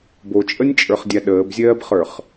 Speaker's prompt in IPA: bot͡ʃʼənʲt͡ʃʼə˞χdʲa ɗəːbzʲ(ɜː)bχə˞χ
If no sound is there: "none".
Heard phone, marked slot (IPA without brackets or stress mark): ɜː